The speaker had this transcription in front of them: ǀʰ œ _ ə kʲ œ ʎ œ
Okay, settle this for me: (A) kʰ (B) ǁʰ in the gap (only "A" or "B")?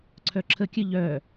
B